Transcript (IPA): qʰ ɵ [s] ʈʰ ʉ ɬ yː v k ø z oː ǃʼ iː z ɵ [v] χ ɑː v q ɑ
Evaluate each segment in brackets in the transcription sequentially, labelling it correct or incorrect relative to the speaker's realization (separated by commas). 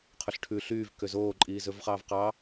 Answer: incorrect, correct